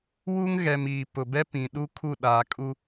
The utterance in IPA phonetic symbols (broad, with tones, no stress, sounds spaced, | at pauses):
w u˦ ŋ ɣ ɛ˨ m iː˨ p ʊ˨ b ɛ˦ p ĩ˨ ɗ u˦ kʰ u˦˨ ɗ aː˨ kʼ u˦